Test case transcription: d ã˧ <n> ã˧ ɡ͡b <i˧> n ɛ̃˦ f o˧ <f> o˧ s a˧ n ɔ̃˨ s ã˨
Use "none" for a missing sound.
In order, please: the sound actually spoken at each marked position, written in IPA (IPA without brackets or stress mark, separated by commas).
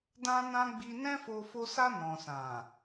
n, i˧, f